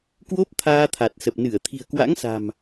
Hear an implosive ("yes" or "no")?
no